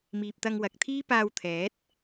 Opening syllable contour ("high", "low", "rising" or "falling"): low